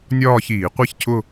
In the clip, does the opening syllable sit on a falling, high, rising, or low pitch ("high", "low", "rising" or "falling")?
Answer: falling